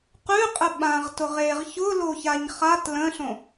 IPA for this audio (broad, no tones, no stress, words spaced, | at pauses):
qʉqʼə ɓãʁtʊʁ eʁ çʊloçaɲ χat lə̃ɬõ